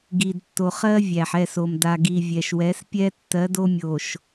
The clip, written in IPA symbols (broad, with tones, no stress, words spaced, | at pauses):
ɡi˨dtːo˨ χɜ˦vʲæ˨ħ ɛ˦˨so˨m da˨ɡi˨ vʲɛ˨ʃwɛ˨˦spʲɛ˦ tːɜ˨˦do˦mʲo˨ʃ